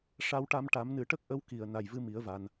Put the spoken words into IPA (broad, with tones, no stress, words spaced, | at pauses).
ʂa˧wʈa˧mʈa˨˩˦m nɨ˨˩˦ʈə˦˥k̚ʔə˧˥w ki˨˩˨ə̯ na˨˩jvɨ˧mi˨˩˦ə̯va˨˩n